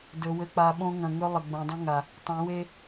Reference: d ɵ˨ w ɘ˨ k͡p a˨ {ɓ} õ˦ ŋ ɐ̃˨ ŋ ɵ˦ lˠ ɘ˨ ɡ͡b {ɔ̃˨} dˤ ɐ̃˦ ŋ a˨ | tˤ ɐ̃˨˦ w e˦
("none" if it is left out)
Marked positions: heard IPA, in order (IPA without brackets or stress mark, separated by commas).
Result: ɓ, õ˨